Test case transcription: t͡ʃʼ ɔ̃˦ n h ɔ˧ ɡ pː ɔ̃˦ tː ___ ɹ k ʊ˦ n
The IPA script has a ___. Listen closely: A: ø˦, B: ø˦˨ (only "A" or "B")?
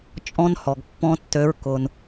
A